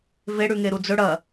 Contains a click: no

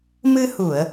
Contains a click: no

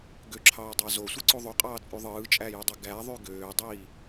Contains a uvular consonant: yes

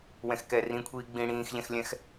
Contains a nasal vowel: yes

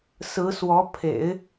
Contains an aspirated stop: yes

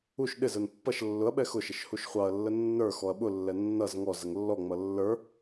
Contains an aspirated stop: no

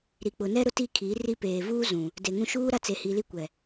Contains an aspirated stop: yes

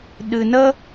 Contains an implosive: yes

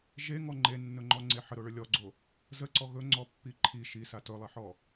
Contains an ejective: no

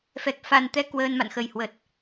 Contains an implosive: no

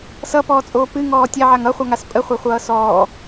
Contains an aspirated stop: no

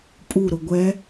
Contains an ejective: yes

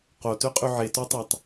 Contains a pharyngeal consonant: yes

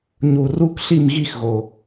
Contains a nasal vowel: no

